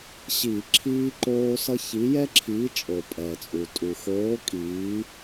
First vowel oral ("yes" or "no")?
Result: yes